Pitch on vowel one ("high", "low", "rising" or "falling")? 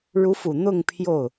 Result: rising